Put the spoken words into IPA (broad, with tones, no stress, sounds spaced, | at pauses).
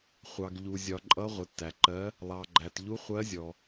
χʷ ɑ˩ ɡ ʎ u˩ zʲ ɒ˩ ǃʼ ʌ˨˦ ʁʷ ɪ˩ tː æ˩ ǃ ɜ˨˦ | lˠ ɑ˩ ɡ͡ǃ æ˩ t ʎ u˨˦ χʷ ɜ˨˦ zʲ ɔ˩